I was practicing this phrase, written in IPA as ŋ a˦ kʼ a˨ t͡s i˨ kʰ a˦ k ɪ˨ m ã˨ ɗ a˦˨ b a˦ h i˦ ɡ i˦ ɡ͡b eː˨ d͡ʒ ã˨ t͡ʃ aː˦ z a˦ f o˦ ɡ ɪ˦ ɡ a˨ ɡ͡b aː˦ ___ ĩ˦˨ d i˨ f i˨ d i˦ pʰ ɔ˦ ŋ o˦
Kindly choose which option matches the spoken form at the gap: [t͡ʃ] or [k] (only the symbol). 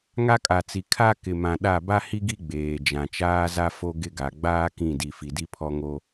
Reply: k